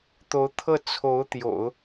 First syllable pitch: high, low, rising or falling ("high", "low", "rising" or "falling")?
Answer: rising